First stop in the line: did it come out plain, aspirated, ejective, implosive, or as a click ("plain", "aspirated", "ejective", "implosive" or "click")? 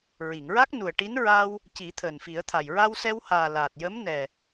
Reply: plain